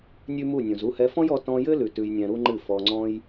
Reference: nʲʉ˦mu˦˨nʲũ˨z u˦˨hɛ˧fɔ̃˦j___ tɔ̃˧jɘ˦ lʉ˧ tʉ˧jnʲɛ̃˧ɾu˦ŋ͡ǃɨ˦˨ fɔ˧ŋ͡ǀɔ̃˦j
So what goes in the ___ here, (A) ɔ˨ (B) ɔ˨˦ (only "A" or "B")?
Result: B